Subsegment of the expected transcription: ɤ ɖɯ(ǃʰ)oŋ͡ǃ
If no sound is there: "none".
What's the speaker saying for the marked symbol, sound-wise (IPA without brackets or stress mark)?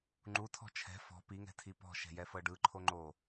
ǃʰ